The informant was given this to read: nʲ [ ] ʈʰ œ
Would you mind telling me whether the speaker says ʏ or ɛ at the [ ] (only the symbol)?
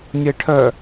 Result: ɛ